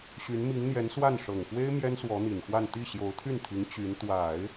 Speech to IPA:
ɕy˧˥nmi˧˥ŋn̪jɛ˧˥nswa˥˩n ʂɤ˨˩ŋxwe˥ɪ̯ mjɛ˥nswɔ˧˥n̪i˨˩nxwa˥˧n t̪i˥˩ɕjo˧˥ʊ̯t̪ʰy˥˩nt̪ʰi˧˥ŋ t͡ɕy˧˥n t̪wa˨˩˦ɪ̯

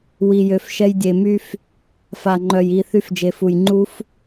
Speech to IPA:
wi˨jø˨fʃɛ˧j dʲe˨my˧f | fa˨ŋ͡ǃœ˨j i˨ θy˧fd͡ʒe˨fu˨j ŋ͡ǃu˦f

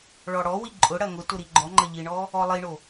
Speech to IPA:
ɭɔɽɔwi ǃʼʊɽɐ ŋʊ tʊɾiɡ͡ǃɔŋ͡ǃɐ ʎiɳɔ | ɔlˠiɳo

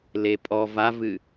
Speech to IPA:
lepʼɔ vavɨ

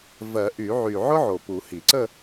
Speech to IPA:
vɜ˨˩˦ʔy˨˩˦ʕy˨˩ ʕʊ˥ ʕo˨˩pu˨˩˦hi˨˩˦ ǀə˥˧

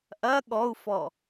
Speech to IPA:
ʔɐ ɠɔu̯fɔ

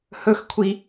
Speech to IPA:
hɵxkʷʰi

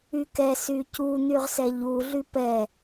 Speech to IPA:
ykɛ sycu n̪yʁsɛʎu ɮypɛ

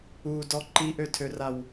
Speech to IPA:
udɔ ǃiʔøtʰøraw

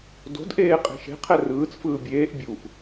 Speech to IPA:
do̤dʔeː qʼe̤ʃe̤ qʰɛrɯːt͡sfɯː bʲeːʔ bʲuʔ

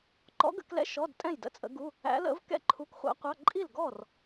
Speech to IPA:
ǃɔ̰˧˥ɡə̰˧˥˧klɛ̰˧˥˧ ʃɔ˧˥˧dtʼɛ̃˥˩jdə̰˧˥˧ t͡sʼə̰˧˥ɡu˧˥˧ | æ̰˧˥lə̰˧˥v kɛ̰˥˩ǃʰu˧˥kχʷæ̰˧˥qʷɑ˧˥˧ ǃʼi˥˩lɡɔ˥˩r

